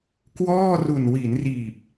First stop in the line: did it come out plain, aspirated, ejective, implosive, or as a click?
plain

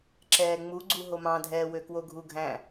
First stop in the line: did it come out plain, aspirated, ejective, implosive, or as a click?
click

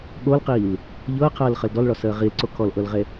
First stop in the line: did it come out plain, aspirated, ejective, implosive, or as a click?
implosive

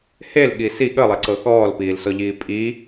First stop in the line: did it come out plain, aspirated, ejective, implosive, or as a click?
implosive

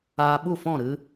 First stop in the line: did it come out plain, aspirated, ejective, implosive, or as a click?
implosive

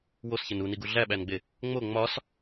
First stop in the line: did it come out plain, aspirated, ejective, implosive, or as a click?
plain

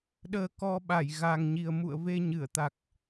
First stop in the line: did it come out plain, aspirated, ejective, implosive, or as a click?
implosive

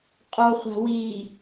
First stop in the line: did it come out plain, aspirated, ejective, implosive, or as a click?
ejective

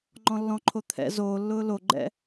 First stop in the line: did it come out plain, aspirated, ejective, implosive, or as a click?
click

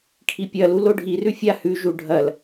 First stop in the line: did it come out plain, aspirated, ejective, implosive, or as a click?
aspirated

